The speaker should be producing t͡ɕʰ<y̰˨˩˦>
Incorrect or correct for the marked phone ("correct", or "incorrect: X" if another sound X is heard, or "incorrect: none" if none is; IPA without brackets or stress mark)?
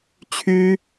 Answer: incorrect: y˥